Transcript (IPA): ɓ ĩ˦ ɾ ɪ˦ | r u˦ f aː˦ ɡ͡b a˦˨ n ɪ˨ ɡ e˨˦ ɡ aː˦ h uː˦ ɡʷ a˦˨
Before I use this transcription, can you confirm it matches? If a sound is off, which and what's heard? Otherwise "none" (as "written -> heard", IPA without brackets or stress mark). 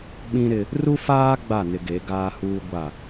none